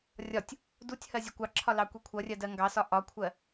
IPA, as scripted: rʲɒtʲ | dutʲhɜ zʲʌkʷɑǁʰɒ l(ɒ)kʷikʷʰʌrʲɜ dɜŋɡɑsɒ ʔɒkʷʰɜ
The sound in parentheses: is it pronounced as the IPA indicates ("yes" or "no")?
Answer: no